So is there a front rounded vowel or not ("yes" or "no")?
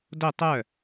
yes